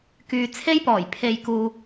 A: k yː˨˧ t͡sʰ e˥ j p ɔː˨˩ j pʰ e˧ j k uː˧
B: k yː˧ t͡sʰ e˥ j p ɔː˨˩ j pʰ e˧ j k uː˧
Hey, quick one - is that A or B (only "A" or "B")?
B